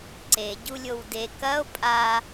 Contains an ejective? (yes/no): yes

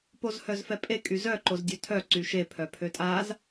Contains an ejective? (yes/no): yes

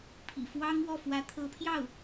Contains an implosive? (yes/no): no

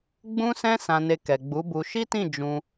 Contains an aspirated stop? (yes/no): no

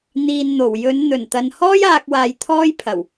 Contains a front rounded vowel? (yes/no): no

